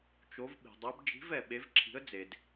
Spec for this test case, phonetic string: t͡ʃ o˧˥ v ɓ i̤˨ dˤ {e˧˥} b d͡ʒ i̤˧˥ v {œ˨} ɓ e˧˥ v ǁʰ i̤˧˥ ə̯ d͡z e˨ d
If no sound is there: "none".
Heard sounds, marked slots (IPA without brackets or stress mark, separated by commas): e˧˥, ɛ˨